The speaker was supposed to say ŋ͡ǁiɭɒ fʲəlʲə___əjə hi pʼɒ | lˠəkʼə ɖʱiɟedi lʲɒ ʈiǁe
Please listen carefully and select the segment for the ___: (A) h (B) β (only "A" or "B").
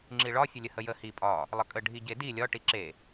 A